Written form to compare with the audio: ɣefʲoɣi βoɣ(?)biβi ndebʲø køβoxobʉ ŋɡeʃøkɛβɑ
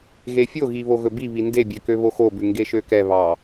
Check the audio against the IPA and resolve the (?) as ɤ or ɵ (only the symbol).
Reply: ɵ